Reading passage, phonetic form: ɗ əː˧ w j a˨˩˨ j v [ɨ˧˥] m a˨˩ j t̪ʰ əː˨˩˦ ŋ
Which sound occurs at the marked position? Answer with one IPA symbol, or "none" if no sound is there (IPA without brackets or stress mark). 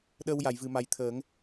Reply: ɨ˨˩˨